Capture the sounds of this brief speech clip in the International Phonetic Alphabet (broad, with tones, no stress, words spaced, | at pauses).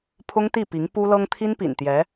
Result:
pʰʊ˥ŋt̪i˥˩pi˧˥ŋ pu˥lɤ˥ŋ t̪ʰi˥npḭ˨˩nt̪jɛ˧˥